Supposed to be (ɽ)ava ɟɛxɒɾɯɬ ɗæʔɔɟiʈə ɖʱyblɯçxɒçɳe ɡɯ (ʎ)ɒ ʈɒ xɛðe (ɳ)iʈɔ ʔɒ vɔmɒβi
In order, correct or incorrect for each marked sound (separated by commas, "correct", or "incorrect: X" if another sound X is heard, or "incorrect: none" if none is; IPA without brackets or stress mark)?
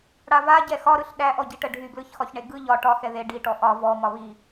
correct, correct, incorrect: ɖ